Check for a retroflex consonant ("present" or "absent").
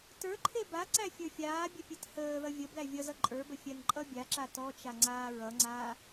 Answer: absent